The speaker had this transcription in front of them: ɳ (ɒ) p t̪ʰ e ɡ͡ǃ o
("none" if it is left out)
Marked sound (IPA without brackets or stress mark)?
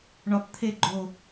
ɒ